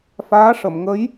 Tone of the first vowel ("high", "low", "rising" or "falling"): rising